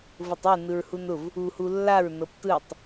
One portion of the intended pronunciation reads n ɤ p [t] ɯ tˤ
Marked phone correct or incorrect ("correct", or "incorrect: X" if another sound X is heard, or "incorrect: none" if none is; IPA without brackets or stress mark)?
correct